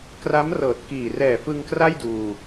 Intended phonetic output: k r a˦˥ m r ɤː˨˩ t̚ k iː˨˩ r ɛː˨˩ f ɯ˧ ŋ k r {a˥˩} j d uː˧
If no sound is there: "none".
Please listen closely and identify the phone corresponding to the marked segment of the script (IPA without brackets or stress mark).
a˥˩